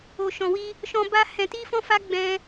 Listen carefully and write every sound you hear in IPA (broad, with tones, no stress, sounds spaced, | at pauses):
o˨ ʃ ɔ̃˨ w i˧ | ʃ ɔ̃˧ b a˦ h ɛ̃˧ t i˦ f ɔ̃˦ f a˦ ɡ͡b ɛ̃˦